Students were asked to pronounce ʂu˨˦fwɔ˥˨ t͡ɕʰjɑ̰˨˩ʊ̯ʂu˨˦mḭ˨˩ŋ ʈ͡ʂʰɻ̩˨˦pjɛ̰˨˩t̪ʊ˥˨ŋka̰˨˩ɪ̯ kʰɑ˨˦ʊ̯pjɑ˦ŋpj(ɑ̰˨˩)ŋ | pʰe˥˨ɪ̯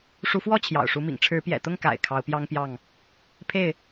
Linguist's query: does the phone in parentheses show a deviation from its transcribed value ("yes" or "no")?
yes